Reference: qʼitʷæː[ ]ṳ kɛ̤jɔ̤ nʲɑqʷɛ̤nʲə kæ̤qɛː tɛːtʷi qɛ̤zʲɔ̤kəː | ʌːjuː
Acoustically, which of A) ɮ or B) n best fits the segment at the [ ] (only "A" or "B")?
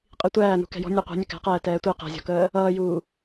B